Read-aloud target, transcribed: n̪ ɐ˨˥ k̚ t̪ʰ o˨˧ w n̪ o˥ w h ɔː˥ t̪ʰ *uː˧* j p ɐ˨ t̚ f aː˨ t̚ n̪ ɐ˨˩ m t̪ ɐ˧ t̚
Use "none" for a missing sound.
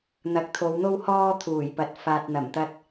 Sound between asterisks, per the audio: uː˨˩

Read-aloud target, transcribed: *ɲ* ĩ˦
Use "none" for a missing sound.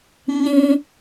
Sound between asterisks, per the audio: ɲ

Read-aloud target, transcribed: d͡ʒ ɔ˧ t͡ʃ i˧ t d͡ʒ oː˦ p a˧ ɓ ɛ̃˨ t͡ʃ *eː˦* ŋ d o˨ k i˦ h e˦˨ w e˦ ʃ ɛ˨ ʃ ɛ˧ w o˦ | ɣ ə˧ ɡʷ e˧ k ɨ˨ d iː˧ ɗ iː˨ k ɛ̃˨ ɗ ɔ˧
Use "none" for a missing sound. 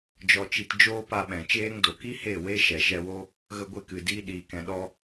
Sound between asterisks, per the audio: eː˦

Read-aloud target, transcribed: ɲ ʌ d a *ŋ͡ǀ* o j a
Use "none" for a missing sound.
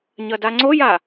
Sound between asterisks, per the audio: ŋ͡ǀ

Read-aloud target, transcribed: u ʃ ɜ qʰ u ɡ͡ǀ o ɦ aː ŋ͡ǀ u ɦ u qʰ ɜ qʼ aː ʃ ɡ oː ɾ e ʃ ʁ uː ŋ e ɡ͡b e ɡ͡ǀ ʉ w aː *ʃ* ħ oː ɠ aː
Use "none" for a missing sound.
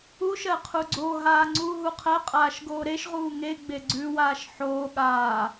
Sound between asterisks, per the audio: ʃ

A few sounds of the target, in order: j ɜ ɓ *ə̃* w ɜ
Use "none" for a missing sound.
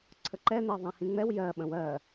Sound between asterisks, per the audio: ə̃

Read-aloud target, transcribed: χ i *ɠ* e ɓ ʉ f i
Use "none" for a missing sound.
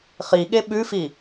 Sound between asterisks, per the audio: ɠ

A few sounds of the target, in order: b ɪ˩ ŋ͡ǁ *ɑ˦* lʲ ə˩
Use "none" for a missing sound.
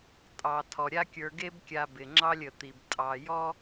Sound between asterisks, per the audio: ɑ˦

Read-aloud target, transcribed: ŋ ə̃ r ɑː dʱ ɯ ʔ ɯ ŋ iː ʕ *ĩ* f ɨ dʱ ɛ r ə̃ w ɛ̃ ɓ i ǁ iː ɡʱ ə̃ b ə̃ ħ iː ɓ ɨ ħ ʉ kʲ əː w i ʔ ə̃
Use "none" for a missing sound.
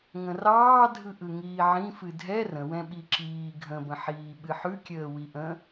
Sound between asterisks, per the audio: ĩ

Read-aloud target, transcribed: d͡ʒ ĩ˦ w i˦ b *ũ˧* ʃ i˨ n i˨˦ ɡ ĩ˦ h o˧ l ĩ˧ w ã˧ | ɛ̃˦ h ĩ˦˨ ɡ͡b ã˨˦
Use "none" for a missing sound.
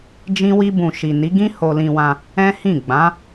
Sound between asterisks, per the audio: ũ˧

